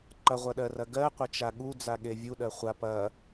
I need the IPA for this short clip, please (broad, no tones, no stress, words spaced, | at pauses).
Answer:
ǃɐʁʷɐɗɜrɐ ɡɜqʷɐt͡ʃa ɠud͡zaɠe vʲuɗɜ χʷa pɐ